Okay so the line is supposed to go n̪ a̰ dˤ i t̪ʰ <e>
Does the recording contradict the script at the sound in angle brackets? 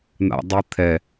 yes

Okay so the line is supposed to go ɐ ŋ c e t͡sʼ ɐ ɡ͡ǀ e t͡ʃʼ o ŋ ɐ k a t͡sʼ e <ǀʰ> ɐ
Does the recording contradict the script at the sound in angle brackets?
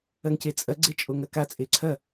no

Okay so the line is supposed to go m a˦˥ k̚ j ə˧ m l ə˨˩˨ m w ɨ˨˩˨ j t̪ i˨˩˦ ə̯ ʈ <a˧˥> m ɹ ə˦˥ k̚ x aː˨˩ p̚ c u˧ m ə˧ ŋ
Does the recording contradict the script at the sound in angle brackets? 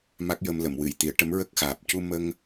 yes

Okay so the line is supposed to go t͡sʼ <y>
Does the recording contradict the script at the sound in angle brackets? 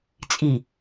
yes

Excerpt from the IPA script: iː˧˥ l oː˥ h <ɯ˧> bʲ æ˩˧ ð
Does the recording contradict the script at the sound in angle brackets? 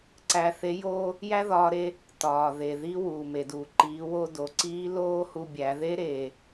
yes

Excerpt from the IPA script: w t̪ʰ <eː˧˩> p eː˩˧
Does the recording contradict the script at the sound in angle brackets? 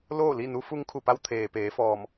yes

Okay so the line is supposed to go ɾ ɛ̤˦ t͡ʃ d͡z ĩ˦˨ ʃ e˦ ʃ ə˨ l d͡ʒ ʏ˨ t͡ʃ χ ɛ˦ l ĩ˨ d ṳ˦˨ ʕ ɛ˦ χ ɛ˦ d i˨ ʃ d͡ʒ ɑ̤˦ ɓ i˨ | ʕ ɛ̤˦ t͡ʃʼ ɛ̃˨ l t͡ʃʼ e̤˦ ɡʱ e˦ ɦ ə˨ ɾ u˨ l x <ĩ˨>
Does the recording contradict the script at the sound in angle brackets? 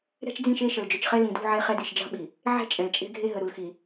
yes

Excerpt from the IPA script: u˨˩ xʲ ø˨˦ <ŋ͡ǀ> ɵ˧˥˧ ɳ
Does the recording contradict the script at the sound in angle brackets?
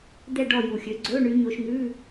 yes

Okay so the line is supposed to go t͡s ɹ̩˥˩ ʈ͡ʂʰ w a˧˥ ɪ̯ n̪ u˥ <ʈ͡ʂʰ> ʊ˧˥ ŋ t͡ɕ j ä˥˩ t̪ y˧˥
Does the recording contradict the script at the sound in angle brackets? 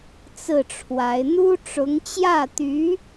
yes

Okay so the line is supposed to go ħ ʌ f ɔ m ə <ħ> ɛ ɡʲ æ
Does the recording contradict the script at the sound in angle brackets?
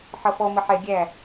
no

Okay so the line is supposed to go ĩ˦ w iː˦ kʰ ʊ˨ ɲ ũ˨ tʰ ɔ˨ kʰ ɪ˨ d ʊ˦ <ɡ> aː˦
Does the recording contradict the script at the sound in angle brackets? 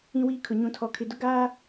no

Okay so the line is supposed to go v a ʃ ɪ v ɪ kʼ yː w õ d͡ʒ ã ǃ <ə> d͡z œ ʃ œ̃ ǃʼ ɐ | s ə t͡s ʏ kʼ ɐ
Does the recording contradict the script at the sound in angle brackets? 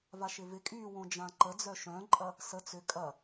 no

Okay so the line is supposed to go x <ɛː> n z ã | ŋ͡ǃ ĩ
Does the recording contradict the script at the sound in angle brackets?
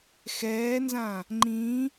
no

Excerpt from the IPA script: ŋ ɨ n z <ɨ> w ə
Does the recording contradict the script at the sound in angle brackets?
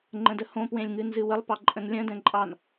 no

